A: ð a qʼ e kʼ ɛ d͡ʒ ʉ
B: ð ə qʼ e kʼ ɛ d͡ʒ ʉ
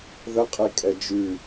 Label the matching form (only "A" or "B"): B